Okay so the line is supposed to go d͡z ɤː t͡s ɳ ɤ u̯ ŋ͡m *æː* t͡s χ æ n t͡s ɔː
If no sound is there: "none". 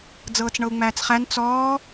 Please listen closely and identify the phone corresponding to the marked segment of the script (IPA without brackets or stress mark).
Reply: æː